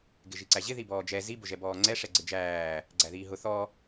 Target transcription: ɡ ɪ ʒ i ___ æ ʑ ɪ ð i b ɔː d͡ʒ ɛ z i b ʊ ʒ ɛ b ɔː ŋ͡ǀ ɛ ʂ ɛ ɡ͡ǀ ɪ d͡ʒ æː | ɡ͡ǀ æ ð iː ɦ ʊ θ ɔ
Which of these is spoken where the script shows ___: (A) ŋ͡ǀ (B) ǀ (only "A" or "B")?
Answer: B